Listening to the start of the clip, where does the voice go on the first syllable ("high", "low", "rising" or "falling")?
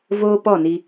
high